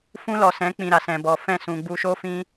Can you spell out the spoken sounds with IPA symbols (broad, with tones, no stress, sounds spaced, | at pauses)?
f ũ˧ l ɔ˨ s ɛ̃˨˦ k͡p ĩ˨ ɾ a˨ s ɛ̃˨ b ɔ˨ f ɛ̃˦˨ s ũ˨ ɡ͡b u˧ ʃ o˦ f ĩ˦